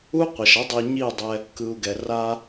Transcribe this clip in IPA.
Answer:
u˦ qʷ ɛ˨ ʃ ʌ˦ dˤ ʌ˧ i̯ ɲ i˦˨ u̯ dˤ ɛ˧ | k ɯ˨ u̯ ɡ ɛ˨ r a˦

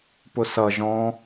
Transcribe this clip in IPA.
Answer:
p ʊ s ʌ ʒ ɔ̃

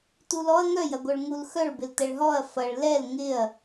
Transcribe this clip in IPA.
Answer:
t u l ɔ ɐ̯ ŋ œ j ɐ ɡʷ œ ɭ ŋ u l x œ ɭ b ɪ l t ɛ ɭ ɦ ɔ ɐ̯ f ɐ ɭ l ɛ l ŋ ɪ ɐ̯

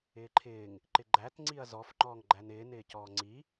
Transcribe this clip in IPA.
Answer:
ɪː ǃʰ ɪː ŋ | ǃ ɪ ɡ͡ǃ æ t ŋ͡ǀ i ɐ̯ z ɔ f ŋ͡ǃ ɔː ŋ ɡ͡ǃ æ n ɪː n ɪː c ɔː ŋ͡ǀ i

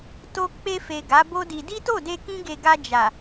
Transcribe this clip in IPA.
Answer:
t o˧ k͡p e˧ f e˨ ɡ a˨˦ b o˦ d i˧ d i˦ t o˦˨ d e˧ k ĩ˦ ɡ e˧ ɡ a˧ d͡ʒ a˨

